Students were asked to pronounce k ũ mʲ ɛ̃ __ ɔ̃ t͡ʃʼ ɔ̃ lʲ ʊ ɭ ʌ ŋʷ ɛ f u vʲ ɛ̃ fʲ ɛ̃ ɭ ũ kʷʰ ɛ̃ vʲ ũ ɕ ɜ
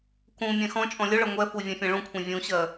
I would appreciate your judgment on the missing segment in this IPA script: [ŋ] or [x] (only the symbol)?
x